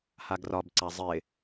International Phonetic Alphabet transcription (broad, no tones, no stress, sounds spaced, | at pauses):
h a ɡ r ɒ b ǀ a zˤ ɪ